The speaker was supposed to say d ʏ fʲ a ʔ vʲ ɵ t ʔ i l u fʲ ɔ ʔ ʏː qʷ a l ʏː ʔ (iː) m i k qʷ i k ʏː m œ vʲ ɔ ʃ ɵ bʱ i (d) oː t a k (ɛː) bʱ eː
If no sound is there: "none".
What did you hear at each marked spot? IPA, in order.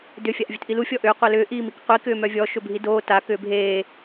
iː, d, ʏː

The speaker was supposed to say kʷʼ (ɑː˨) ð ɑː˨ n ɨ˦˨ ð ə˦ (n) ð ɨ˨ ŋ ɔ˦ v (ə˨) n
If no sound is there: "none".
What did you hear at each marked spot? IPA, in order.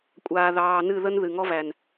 aː˨, n, æ˨

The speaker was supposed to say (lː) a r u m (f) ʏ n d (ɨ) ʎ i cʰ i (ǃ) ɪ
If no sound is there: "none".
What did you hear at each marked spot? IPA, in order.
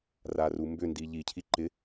r, b, i, ǃ

